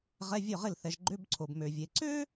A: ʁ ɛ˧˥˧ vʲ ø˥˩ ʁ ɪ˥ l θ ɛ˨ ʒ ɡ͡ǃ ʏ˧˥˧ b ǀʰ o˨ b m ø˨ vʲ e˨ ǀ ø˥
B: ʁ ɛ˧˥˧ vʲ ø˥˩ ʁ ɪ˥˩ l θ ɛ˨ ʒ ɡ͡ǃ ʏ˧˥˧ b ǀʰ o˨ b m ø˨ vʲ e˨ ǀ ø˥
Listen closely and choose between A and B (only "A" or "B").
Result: B